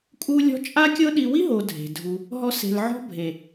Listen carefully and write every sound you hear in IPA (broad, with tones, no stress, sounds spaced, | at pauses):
kʼ u˦ lʲ ɔ̤˦ t͡ʃʼ a˦ kʲ ɤ˦ ɗ i˧ w i˦ ɦ o˨ dʱ e̤˨ dʱ u˧ | ɦ ɔ˧ s e̤˨ l ʕ ɔ̤˦ bʱ e˨